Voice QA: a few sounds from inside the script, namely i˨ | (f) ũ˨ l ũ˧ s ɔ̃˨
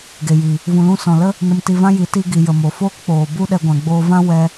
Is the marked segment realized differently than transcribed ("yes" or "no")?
yes